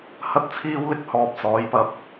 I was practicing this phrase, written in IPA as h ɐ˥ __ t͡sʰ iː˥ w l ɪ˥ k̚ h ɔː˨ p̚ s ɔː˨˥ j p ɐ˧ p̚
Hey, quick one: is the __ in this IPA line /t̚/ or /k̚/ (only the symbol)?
t̚